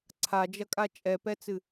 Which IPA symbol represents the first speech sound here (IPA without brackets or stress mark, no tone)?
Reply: ǀʰ